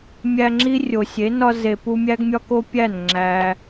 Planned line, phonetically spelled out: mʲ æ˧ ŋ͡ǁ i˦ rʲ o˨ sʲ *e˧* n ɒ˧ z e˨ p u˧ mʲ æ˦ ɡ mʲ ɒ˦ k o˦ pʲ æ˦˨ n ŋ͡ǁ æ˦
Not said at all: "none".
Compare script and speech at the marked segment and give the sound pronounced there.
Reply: e˨˦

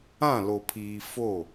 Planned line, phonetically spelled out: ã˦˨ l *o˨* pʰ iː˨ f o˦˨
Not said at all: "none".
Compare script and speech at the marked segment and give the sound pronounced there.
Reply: o˨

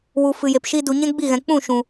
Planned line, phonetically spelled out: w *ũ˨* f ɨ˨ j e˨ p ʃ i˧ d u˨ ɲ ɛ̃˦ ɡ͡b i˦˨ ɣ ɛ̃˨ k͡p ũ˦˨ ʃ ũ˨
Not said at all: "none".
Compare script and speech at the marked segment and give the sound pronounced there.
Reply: u˨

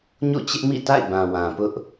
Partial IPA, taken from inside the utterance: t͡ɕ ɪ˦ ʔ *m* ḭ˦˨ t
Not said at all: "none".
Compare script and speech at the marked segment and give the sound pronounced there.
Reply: m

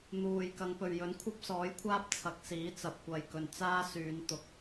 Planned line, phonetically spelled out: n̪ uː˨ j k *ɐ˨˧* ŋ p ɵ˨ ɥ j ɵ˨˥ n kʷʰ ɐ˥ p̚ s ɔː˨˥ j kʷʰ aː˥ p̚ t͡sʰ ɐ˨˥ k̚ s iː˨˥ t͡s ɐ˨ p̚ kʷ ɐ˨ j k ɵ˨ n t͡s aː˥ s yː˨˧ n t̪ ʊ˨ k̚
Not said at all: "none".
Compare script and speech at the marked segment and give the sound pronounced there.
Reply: ɐ˨˧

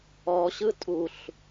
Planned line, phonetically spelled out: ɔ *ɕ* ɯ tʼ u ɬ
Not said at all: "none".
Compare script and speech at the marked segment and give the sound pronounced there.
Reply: ɕ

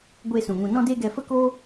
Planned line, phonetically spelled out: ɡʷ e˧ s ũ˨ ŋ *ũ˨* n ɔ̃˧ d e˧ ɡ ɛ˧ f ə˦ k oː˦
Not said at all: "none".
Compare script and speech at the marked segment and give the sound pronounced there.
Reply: ũ˨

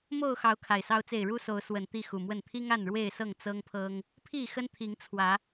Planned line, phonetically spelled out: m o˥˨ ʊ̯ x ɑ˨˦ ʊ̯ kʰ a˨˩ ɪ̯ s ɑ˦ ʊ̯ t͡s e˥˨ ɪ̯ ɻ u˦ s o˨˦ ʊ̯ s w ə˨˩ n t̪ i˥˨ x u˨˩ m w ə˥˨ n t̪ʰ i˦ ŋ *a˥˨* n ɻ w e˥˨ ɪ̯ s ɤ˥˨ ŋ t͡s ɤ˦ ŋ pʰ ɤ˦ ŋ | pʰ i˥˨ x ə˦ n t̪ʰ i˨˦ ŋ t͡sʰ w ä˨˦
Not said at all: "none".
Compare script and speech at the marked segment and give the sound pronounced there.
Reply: a˥˨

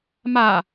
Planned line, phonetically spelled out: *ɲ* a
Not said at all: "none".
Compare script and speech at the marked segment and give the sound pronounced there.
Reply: m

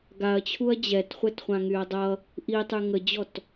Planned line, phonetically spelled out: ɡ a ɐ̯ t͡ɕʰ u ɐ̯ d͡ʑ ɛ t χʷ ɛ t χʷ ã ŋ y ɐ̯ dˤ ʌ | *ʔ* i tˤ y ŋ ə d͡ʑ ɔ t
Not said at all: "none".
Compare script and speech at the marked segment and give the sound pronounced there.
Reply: ʔ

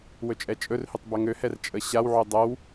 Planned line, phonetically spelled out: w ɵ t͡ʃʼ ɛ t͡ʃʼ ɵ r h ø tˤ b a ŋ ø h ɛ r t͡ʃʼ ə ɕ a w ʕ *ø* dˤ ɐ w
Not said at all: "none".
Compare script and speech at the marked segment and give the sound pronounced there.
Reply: ø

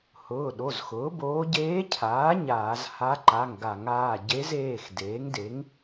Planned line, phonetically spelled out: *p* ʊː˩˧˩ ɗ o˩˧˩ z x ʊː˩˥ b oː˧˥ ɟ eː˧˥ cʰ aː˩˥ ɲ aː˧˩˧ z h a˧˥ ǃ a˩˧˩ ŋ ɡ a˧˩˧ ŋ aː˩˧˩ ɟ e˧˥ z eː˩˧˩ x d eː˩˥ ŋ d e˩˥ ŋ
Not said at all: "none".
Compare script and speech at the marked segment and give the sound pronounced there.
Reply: h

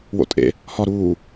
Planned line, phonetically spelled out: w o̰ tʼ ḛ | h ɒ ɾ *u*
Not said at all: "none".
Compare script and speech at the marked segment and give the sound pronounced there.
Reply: uː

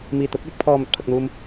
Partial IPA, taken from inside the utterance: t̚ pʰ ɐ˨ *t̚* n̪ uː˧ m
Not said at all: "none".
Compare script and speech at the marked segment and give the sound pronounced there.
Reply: k̚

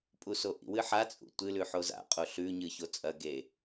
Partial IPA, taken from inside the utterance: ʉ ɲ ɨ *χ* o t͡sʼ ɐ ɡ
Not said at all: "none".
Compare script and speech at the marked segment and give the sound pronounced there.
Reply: ç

